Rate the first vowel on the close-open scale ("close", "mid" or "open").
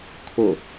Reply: close